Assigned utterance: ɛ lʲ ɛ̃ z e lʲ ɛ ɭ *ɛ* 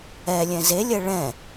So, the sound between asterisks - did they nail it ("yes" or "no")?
no